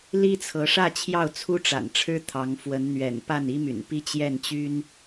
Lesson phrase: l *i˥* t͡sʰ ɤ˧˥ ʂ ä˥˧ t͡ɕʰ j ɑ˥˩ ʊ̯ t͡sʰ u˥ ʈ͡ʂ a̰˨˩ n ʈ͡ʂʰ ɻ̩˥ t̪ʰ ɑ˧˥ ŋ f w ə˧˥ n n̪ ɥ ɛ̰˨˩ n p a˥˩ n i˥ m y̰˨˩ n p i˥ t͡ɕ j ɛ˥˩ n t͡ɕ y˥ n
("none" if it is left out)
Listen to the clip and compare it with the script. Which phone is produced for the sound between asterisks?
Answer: i˥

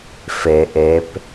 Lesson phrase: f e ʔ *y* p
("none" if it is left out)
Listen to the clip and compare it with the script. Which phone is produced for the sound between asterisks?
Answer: e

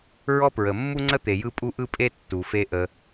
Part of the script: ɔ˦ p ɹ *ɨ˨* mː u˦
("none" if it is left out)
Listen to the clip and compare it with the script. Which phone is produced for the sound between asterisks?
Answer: ə˨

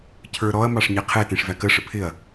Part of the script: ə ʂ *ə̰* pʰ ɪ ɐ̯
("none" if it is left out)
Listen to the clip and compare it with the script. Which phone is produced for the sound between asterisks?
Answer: ə̰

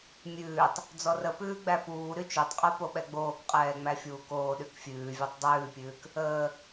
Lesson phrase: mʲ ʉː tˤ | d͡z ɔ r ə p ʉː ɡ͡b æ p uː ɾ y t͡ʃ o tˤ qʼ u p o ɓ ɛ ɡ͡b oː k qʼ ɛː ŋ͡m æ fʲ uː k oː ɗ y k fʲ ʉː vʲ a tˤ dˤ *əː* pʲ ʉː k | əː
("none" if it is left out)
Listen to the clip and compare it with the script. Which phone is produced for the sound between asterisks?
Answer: ʉː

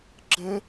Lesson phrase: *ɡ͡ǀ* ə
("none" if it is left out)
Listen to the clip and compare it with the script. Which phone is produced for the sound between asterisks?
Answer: ɡ͡ǁ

